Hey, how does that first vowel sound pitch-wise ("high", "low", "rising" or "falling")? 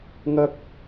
high